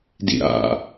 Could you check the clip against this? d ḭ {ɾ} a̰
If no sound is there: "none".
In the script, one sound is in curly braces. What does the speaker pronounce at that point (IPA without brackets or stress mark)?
ɾ